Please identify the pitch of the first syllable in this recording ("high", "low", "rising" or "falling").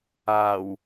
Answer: low